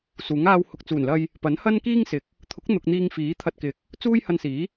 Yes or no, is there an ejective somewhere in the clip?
no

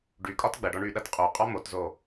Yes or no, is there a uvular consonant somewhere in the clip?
yes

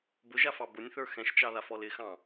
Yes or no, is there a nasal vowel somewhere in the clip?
yes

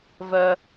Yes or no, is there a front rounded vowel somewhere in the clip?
yes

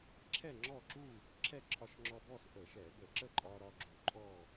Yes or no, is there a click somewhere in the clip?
yes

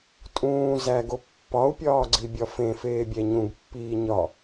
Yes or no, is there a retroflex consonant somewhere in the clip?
no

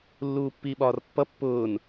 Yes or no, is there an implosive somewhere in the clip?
yes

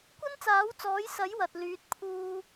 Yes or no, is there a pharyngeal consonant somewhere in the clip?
no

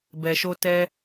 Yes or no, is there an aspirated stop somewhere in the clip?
no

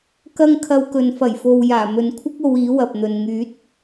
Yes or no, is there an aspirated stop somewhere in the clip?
yes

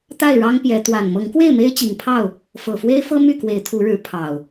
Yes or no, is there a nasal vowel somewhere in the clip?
no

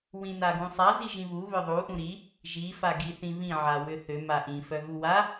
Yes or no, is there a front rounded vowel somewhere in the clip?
yes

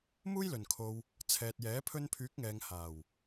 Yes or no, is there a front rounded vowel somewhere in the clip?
yes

